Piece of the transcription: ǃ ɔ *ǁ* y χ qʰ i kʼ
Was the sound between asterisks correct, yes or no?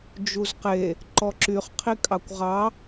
yes